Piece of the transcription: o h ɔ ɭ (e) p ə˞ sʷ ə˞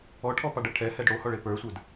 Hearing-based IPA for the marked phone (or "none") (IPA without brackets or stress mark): e